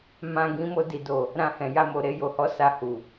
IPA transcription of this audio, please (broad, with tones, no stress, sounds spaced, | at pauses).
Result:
m ã˧ ɡ ĩ˧ m o˧ d i˨ d o˨ | ɾ ã˧ h ɛ̃˨ j a˧ m o˨ ɾ e˧ j o˨ h ɔ˨˦ s a˧ h u˨